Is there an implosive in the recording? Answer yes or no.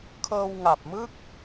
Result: no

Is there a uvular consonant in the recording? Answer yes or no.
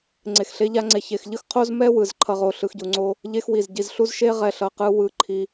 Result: yes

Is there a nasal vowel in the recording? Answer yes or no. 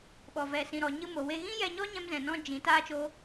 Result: yes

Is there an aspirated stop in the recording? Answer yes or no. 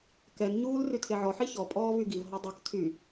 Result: yes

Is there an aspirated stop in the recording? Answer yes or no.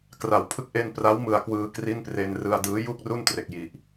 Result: yes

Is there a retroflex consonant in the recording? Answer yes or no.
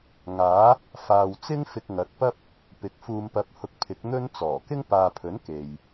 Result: no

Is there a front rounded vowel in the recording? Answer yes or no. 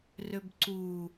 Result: yes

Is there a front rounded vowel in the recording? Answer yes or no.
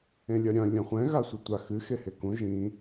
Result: no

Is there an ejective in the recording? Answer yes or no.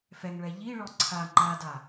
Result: no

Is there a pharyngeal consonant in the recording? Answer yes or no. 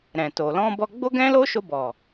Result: no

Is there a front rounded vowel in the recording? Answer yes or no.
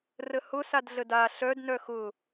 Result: yes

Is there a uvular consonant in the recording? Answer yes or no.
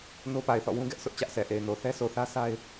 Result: no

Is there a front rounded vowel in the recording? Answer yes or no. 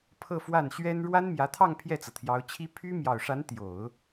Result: yes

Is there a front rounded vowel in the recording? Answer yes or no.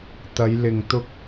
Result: no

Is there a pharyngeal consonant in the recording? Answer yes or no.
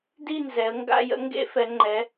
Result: no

